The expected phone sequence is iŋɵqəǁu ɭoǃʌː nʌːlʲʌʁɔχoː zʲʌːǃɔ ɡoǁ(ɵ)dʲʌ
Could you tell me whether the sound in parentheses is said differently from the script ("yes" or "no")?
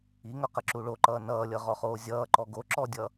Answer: yes